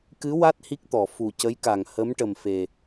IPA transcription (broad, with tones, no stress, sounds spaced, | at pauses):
k ɨ˧˥ w a˦˥ t̚ h i˦˥ k̚ t̪ ɔ˨˩˨ f u˨˩ c ə˧˥ j k a˨˩ ŋ h ə˧˥ m ʈ ə˨˩ m f e˨˩